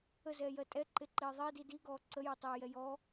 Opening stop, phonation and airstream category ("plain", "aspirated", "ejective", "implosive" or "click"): ejective